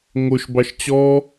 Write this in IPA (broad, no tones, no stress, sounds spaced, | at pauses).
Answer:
ŋ o ʃ b ɑ ʃ t͡ɕ ɔ